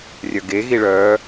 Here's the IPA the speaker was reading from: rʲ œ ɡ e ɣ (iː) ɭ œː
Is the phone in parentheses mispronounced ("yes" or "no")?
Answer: yes